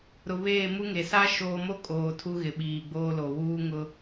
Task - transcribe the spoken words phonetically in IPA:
ɾʊ˨βeː˦˨ mu˦ŋe˨ sa˦ ʃoː˦ mo˦ kʼoː˨ tʰu˦ɣɪ˨ɓiː˨ ɡ͡boː˦lo˨ wuː˦ŋʊ˦

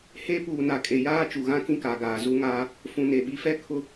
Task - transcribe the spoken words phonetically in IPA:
he˦puː˨ na˨kʼe˨jaː˦ t͡ʃu˨ɣã˦ kĩ˦ka˨ ɡaː˨zu˦ŋaː˦ | fũ˨ne˨ɓi˨˦fɛ˦ kʰʊ˦

